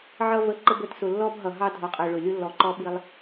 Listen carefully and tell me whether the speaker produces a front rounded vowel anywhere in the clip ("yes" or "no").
no